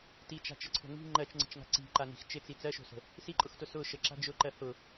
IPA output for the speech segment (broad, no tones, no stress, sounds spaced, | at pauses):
t i t͡ʃ a̤ t͡ʃ ə ǀʰ o̤ ŋ i̤ ŋ͡ǃ ɜ t͡ʃ ŋ͡ǀ ə̤ t͡ʃ ŋ a̤ ǀ i̤ ǃ a n i̤ x t͡ʃ ɪ t͡s i t͡s ɜ ʃ o̤ s ə̤ | s i ǃʼ ʊ x t ʊ s ʊ ʃ ə ǁ a̤ d͡ʒ ʊ ǃ ɜ h ʊ